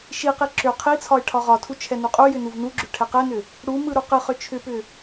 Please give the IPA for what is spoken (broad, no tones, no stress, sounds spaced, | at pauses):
ʃ i q i ǁ ʏ qʰ i t͡sʰ ɒ ɪ̯ ʈʰ ɒ ʁ ɒ tʰ u t͡ʃʰ ɛ n u qʼ u j ʏ n u v n u ɡ͡ǁ ʏ ʈʰ ɛ q ɛ n ʏ | ɽ u m ɯ ɾ u q ɯ χ ʏ t͡ʃʰ ʏ p ʏ